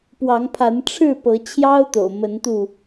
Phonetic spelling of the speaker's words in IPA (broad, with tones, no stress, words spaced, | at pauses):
pwɑ˨˦ŋpʰa˨˦nʈ͡ʂʰɻ̩˥˨ pɤ˨˦t͡ɕʰjɑ˦ʊ̯t̪o̰˨˩ʊ̯ mə˨˦nt̪u˧